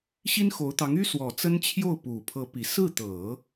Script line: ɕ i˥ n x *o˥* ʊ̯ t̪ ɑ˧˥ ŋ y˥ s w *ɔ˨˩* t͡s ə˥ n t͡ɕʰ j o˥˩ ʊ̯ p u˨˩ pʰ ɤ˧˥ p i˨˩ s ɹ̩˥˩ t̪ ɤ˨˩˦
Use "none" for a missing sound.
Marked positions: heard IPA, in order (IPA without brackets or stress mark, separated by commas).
o˧˥, ɔ˨˩